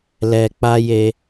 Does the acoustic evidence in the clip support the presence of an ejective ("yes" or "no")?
no